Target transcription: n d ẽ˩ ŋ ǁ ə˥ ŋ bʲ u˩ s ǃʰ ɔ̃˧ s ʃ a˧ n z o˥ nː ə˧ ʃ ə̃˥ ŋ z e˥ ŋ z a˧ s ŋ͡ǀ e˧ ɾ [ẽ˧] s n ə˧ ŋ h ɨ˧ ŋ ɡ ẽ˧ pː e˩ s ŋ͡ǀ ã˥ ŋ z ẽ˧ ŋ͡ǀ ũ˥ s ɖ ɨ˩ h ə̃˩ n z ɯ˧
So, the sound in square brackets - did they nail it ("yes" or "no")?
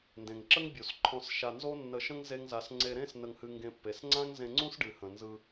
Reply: no